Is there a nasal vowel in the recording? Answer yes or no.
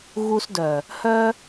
no